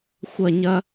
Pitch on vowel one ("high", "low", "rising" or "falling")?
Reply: falling